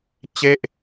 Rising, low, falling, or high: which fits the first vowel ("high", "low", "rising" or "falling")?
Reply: falling